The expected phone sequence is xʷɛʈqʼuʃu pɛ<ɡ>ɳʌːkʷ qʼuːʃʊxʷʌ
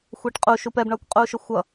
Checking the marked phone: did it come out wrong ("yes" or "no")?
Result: yes